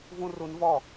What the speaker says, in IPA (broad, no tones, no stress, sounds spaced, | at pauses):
v ũ r u n v ɔ